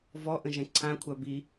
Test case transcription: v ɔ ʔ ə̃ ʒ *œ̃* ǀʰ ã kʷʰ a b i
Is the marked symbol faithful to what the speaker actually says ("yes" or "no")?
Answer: no